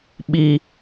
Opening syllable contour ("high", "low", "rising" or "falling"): high